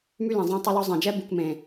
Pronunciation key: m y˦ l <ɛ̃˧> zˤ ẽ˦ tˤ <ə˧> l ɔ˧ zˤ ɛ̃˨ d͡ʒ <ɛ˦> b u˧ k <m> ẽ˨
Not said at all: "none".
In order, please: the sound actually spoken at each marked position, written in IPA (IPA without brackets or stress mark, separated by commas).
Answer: ɛ̃˨, ə˧, ɛ˦, m